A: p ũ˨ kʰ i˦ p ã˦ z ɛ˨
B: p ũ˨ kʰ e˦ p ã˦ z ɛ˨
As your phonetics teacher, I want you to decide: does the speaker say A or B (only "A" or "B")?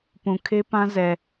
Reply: B